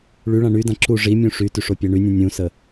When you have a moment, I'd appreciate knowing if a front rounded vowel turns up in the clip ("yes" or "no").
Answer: yes